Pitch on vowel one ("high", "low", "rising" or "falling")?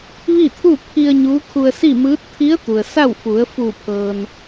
falling